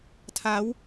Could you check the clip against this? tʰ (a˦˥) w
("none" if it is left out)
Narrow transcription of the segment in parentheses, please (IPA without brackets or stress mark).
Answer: a˦˥